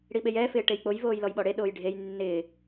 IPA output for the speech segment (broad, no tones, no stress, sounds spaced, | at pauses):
ɽ i ɓ e j ɛː f ɪː ʈ e j k͡p o j v oː j l ɔ j ɓ ɔ ɽ e ɗ oː j ɖʱ e j nː ɪː